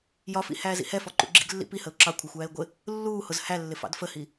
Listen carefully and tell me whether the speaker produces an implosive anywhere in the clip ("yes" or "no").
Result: no